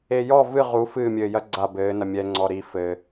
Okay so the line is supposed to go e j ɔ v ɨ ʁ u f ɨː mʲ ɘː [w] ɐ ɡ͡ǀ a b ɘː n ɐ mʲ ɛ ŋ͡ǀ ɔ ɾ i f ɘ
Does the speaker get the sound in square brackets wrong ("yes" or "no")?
yes